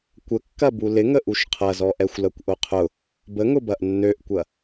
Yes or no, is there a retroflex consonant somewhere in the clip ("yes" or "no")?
no